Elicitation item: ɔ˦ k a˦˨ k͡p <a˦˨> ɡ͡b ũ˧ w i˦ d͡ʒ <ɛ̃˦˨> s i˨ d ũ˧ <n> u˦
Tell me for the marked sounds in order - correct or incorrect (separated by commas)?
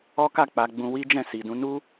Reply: incorrect, correct, correct